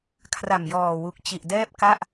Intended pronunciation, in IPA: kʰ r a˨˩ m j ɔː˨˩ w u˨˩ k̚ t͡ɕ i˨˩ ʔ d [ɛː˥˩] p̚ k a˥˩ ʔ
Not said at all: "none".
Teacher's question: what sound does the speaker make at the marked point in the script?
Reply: ɛː˥˩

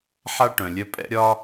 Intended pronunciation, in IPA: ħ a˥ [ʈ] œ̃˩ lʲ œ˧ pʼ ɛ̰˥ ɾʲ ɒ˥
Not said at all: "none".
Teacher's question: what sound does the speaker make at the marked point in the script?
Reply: ʈ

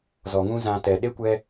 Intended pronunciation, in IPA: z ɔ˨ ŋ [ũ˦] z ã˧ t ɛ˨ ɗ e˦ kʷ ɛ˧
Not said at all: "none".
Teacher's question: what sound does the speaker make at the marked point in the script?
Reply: ũ˦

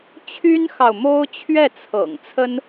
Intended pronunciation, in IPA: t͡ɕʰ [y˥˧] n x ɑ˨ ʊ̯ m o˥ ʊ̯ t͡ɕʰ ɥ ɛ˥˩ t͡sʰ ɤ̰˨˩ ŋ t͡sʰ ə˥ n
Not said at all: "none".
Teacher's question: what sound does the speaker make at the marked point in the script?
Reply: y˥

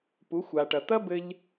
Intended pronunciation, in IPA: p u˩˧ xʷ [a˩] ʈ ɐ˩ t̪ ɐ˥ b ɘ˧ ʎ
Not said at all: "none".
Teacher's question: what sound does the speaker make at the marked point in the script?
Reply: a˩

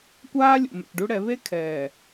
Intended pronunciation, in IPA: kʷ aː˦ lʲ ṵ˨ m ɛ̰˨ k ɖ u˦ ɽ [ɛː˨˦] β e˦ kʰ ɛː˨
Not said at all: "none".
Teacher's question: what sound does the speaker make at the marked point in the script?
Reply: ɛ˨˦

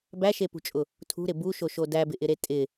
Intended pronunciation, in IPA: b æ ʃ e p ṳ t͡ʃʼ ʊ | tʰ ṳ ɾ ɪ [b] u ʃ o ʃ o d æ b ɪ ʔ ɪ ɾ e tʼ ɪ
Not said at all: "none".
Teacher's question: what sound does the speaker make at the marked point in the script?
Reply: b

